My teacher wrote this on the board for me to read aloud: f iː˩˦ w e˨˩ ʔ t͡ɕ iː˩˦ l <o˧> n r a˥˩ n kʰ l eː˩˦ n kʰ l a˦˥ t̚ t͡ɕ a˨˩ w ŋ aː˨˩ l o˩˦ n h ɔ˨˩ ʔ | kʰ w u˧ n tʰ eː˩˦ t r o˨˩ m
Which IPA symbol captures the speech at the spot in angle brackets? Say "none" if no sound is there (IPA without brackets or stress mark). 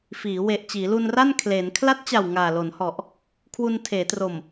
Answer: u˧